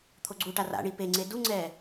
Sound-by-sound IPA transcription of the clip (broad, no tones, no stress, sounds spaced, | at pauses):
t̪ʰ o ɡ͡ǀ u ʈ a r a̰ ɳ i p e ŋ͡ǀ e d u ŋ͡ǀ ɛː